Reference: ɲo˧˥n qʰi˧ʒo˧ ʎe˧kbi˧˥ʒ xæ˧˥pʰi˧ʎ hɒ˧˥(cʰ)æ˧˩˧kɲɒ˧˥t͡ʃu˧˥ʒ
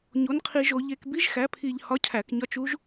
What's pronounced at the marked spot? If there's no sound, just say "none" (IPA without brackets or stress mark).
cʰ